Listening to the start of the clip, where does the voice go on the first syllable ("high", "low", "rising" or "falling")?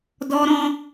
high